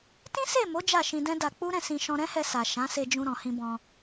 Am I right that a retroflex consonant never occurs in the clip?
yes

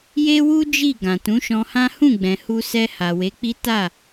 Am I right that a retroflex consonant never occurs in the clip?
yes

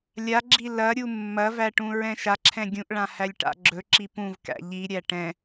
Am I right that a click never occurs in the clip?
no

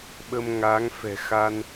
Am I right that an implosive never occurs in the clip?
no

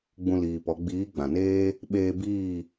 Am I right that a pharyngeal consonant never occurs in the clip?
yes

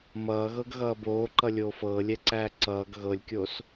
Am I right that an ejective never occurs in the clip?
yes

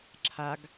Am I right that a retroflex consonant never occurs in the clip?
yes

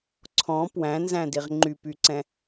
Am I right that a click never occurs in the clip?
no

